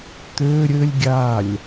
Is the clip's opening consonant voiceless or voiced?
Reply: voiceless